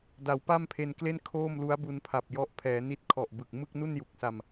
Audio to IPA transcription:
da˩˦wpa˥˩mpʰe˧nkle˥˩n kʰoː˥˩m lu˦˥a̯bu˧npʰa˨˩p̚ jɔ˦˥ʔ pʰɛː˩˦ni˦˥t̚ kʰɔ˨˩ʔbɯ˨˩k̚ mɯ˥˩k̚nu˥˩nju˨˩k̚sa˧m

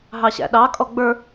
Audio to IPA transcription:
ɦɑɕæ̰ɗɑ kʼɔɡ͡bə˞

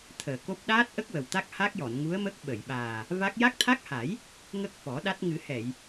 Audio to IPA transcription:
t̪ʰəː˨˩ko˦˥p̚ ɗaː˦˥t̚ʔə˦˥k̚ wə˨˩wt̪a˦˥k̚ ha˦˥k̚jɔ˨˩˨nŋu˧˥ə̯ mə˦˥k̚ɓə˨˩˨jɓaː˨˩ | va˦˥k̚ ja˦˥k̚t̪ʰa˦˥k̚ha˨˩˦j | ŋə˦˥k̚ fɔ˨˩˦ɗa˦˥t̚ ŋɨ˨˩˦hɛ˨˩˨j

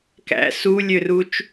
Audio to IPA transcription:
kæ̰ sulʲørut͡ʃ

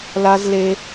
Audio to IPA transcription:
la˧z le˧

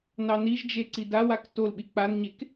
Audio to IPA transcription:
nɑniʒd͡ʒe ǀidawak tolɓi k͡panɲek

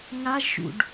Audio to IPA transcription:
ŋaʒʃṵɖ

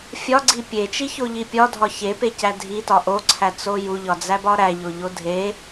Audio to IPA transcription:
fʲɒɡ͡ǀi pʲet͡ʃiçoʎi pʲɒdʱɒ çepecæ dʱitɒ ʔoǀʰæt͡so juʎɒd͡zæbɒ ɾæʎoʎo dʱe

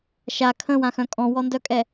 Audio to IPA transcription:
ʃa kʰə̃wãxœ̃ kʼɔ̃wɔndœkʼɛ

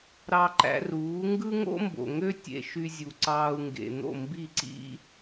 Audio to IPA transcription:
ɾɑ˧ǃæ̰˧ruː˩˥ ŋɡɯ˥ŋo̰˥mbo̰˩ŋø˥ tʲḛ˧ʃy˧ zʲu˩ ǀɑː˧u̯ŋɡḛ˩ n̪o̰˥˩ mbi˥˩ǀḭ˥

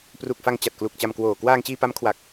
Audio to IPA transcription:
pru˨˩k̚fa˧ŋ t͡ɕa˨˩t̚klu˨˩k̚t͡ɕa˧mkwoː˨˩ kwaː˧ŋt͡ɕiː˧pa˦˥m kʰwa˨˩k̚

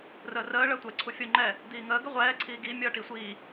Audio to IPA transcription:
rəːrəː ɭəːtʷɛ ǀʰufʲo ŋ͡ǃɛ | diːŋəː ɡəʁʷɛː ǀʰiːɡi mʲʌːʈisʷiː

